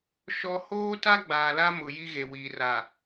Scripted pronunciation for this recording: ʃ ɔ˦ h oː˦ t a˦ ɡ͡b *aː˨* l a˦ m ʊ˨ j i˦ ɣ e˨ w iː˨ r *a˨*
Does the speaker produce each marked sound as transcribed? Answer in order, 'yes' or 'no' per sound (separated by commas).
yes, yes